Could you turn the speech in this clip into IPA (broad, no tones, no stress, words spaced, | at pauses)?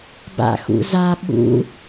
ba̰xṵza ɓṵ